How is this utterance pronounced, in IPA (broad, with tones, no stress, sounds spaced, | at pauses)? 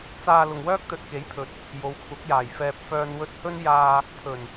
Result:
t͡s aː˧ l ʊ˨ ŋ w œː˥ k̚ t̪ ɵ˨ t̚ k e˨˥ j pʰ ɵ˨ t̚ | j o˨˧ w kʷʰ ɐ˨˥ k̚ j aː˨˩ j f ɛː˨ p̚ f œː˨ n w ɵ˧ t̚ h ɵ˥ n j aː˧ | pʰ ɵ˨˩ n